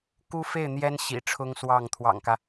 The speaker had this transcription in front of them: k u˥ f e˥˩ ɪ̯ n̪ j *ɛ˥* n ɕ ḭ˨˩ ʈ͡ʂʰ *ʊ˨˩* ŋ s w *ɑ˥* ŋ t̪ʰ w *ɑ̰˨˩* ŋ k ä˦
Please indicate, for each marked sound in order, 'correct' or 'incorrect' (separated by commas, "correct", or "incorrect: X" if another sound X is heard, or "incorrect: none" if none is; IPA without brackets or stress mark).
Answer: correct, incorrect: ʊ˥, incorrect: ɑ˥˩, correct